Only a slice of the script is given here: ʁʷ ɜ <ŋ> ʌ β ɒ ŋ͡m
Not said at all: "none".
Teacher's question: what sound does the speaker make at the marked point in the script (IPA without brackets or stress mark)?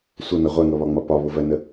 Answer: ŋ